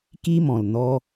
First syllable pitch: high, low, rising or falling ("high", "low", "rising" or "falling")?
high